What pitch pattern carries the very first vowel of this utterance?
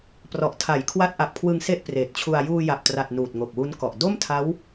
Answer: low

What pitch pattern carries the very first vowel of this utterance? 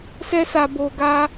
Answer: high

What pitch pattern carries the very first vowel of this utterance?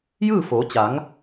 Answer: falling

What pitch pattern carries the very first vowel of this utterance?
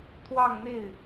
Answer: falling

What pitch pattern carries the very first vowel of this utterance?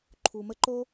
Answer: low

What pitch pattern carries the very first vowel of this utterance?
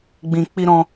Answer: low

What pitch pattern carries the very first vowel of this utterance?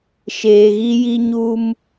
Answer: low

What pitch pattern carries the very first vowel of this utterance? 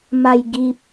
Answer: low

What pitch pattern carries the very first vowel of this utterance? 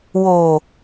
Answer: low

